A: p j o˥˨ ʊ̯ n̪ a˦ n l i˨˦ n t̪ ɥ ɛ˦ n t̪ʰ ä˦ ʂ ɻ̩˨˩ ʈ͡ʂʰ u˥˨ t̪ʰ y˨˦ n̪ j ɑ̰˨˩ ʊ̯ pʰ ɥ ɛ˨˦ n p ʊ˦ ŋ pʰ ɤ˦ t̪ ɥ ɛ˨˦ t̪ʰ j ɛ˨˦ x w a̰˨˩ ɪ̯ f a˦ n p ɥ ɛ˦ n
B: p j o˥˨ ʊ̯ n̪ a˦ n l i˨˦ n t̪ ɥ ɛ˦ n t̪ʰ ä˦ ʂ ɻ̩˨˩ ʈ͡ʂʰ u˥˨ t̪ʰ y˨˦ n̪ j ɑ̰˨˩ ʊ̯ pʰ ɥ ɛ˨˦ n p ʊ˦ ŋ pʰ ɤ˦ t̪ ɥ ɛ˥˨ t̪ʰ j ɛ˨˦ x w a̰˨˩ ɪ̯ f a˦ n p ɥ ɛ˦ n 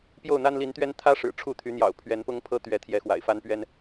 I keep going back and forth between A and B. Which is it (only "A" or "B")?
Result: A